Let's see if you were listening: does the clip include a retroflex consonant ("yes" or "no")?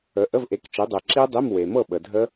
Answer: no